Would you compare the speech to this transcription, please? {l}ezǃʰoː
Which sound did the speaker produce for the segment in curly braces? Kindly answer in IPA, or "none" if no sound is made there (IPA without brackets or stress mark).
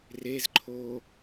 r